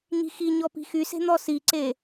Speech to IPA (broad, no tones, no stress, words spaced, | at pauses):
ɲi̤xi ɲɔpi̤xyse̤ n̪ɔsiǀe